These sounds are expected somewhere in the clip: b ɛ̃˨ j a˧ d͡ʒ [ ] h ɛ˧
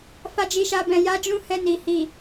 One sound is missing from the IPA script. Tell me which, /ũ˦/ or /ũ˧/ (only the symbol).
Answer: ũ˦